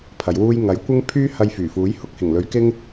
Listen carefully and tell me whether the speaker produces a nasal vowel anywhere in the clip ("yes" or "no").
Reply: no